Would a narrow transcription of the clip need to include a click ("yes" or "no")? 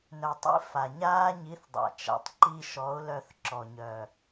yes